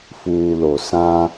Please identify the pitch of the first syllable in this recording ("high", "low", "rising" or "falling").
low